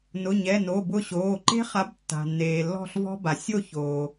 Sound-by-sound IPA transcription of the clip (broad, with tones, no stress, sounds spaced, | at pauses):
n ʊ˩˧˩ ɲ ɛ˩˧˩ n o˩˧˩ b ʊ˦˨ ɕ oː˩˧˩ ǃ e̤˦ χ a˨˥ b tː a̤˩ nː eː˩ lː ɔ̤˦˨ ɬ v ɔ̤˦ b a˩ sʲ o˦˨ ç oː˩